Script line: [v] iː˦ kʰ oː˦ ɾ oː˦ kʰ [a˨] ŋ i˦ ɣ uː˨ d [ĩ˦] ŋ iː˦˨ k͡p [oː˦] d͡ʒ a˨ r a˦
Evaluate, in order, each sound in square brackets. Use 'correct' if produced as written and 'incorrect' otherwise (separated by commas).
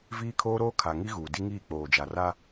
correct, correct, incorrect, incorrect